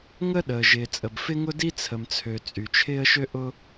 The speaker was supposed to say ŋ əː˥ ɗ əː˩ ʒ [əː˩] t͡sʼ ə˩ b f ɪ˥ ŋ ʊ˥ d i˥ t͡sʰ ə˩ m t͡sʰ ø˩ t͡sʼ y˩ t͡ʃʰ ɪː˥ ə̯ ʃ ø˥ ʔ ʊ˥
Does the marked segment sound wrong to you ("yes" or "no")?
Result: yes